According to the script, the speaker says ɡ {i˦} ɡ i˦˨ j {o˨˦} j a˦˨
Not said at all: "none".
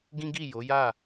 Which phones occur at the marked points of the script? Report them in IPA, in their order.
ĩ˦, o˨˦

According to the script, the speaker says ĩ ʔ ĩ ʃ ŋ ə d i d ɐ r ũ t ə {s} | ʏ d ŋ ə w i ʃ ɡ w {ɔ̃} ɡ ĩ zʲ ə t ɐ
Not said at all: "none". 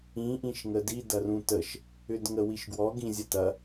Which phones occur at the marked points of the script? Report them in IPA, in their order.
ʃ, ɔ

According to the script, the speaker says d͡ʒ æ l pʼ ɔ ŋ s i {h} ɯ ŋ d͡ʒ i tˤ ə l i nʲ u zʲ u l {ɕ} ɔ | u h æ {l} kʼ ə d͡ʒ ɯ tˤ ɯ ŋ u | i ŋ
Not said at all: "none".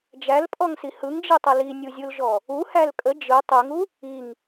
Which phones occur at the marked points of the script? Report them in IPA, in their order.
h, ʒ, l

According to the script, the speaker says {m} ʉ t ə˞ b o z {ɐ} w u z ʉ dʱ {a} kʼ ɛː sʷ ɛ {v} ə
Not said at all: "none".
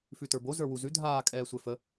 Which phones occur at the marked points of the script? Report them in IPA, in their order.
f, ə˞, aː, f

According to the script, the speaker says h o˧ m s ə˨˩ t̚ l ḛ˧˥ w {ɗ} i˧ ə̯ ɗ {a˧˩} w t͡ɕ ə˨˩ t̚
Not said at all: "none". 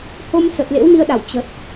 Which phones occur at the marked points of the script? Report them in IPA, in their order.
n, a˧˩

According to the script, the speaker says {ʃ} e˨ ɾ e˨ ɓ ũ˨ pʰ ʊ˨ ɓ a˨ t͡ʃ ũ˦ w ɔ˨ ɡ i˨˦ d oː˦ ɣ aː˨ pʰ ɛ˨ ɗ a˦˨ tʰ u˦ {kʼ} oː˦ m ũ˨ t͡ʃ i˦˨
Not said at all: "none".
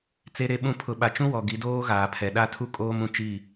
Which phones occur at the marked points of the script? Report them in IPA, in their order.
t͡s, kʼ

